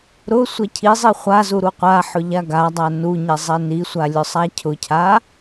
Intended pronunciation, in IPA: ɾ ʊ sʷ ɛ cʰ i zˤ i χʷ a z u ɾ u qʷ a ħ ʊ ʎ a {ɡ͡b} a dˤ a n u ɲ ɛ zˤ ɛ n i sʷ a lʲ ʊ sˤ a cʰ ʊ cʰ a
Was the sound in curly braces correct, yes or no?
no